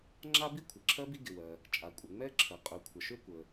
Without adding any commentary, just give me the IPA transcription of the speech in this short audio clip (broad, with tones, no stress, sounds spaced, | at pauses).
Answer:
ŋ͡ǁ a˥ b i˥ kʷʰ ɪ˩ ǁʰ ɜ˥ b i˥ ɡ ɪ˩ w ɜ˩ | t͡ʃʼ a˩ kʷʼ ə˩ ŋ͡m ɛ˥ ǁʰ ə˩ qʼ ʏ˩ kʷʰ ə˩ ʃ ʏ˥ kʷ ə˩